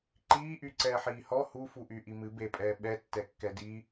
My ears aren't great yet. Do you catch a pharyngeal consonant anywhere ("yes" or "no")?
yes